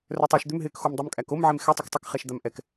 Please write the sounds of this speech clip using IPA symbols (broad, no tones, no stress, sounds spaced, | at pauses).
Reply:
r œ tˤ œ ʃ d̪ ʏ m ɦ ɪː k x o m dˤ u m kʼ æ k o m ʕ e m x ɛ tˤ u k tˤ ɪ k χ ɛ ʃ d̪ a m ʔ ɛ k